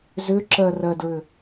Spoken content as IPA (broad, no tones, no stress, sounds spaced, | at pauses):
z ʏ ǁ ɜ r ɜ d ɹ ʏ